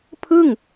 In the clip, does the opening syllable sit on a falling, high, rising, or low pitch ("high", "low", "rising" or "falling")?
falling